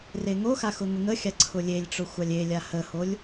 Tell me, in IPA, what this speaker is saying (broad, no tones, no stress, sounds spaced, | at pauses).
r e ŋ o x a x ʊ ŋ ʊ ŋ ə xʲ a ǀʰ ʊ lʲ e lʲ ʈ͡ʂ ʊ xʷ a lʲ e lʲ a h ə h o lʲ